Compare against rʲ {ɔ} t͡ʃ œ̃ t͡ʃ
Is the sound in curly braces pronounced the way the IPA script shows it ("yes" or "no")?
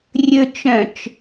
no